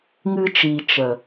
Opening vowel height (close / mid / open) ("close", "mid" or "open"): close